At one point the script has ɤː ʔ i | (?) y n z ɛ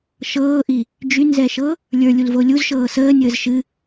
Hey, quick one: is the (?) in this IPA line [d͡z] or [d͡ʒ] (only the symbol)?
d͡ʒ